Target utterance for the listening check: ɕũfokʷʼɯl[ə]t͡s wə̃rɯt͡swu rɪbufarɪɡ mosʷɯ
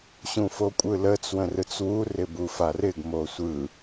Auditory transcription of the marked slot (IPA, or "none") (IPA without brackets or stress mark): ə